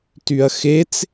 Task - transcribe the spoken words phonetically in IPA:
t y ɐ̯ x e t͡s

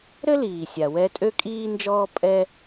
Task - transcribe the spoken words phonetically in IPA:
ɾ ɘ˥ l iː˩ sʲ a˩ w ɛ˧ tʼ ø˥ kʼ iː˥ n d͡ʒ ɔː˥ pʼ ɛ˥

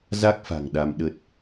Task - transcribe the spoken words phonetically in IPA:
z a˦˥ k̚ f a̤˨˩ ŋ ɗ a˧ m ɗ ə˦˥ t̚

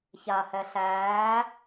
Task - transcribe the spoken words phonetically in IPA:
ç a h ɛ ɬ æː

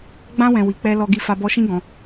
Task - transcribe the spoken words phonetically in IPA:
ɡ͡b ã˧ w ɛ̃˨ w i˨ k͡p ɛ˧ l ɔ˧ ɡ i˧ f a˧ b ɔ˧ ʃ ĩ˦ ɡ ɔ̃˧

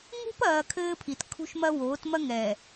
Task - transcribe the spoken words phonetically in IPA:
ŋ ṳ˦ p ɐː˨ kʰ ɘː˦ pʰ i˨ t kʰ ṳ˦ ʃ m ɐ˦ w oː˨˦ t m ɐ˦ ŋ ɛː˨

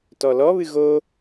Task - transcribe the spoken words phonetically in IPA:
t ɔ l ɔ β ɨ ɣ o

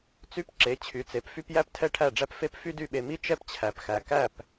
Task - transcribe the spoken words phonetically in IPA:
t͡s y˥ p ǁ e˩˥ t͡ɕʰ y˩˥ t͡s e˩˥ p f y˥ p j æ˥ p tʰ ɛ˥˩ ʈʰ æ˥˩ ɖ͡ʐ æ˥ p f e˥ p f y˥ d y˥˩ ɓ e˧ m i˥ t͡ʃ ɛ˥ p t͡ɕʰ æ˩ p x æ˩ k æ˥˩ p

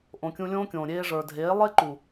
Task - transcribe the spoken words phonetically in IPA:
ʔ õ˨ kʲ ũ˧ lʲ õː˦ kʲ õː˨ ɾʲ eː˧ ʐ ə˞˨ dʱ eː˨˦ lˠ e˦ ǃ u˨

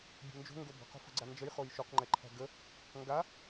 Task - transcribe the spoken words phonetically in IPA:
bʲ o̤ n d͡ʒ o̤ ŋ ɡ o b ə̤ q o̤ f ə̤ ɡ͡ǀ a n d͡ʒ ə j χ o j ʃ o q ŋ͡ǃ ɛ ǃʰ æ̤ ɡ ə | ŋ ɡ a

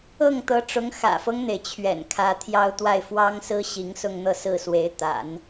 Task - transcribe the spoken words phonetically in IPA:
ɤ˥˩ ŋ t̪ ɤ˧˥ ʈ͡ʂ ʊ˧˥ ŋ x ä̰˨˩ f ɤ˦ ŋ n̪ e˩ ɪ̯ t͡ɕʰ ɥ ɛ̰˨˩ n kʰ ä˧˥ t̪ʰ j ɑ˥ ʊ̯ t̪ w a˥˩ ɪ̯ f w ɑ˥ ŋ s ɹ̩˥ ɕ i˧˥ ŋ s ʊ˥˧ ŋ n̪ ɤ˥˧ s ɹ̩˥˩ s w e˧˥ ɪ̯ t̪ a̰˨˩˦ n

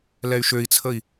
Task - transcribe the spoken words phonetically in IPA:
l ɛ y̯ ʃ ø i̯ t͡sʰ ə i̯

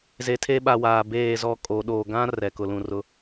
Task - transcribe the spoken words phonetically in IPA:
z e˨ tʰ e˦ ɓ a˨ w aː˨ b eː˦˨ z ɔ˦ kʼ o˨˦ ɗ o˨ ɡ ã˦ r ɛ˨ k ʊ˨ l ũ˨ r ʊ˦

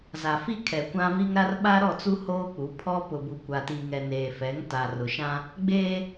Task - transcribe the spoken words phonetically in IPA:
z a˨ f i˦ kʰ ɛ˨ kʷ ã˦ v i˦ ŋ ɾ a˦ r ɓ a˦ ɾ ɔ˦˨ t͡s u˦ h oː˦ k͡p u˨˦ pʰ ɔ˦ p ʊ˨ b u˨ kʷ a˨ t i˨ ŋ ɛ˨ n eː˨ f ɛ˨˦ ŋ t a˨ r ʊ˨ ʃ ã˦ | ɡ͡b eː˦

